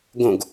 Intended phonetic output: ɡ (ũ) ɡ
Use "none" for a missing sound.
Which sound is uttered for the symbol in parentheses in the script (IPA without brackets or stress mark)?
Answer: õ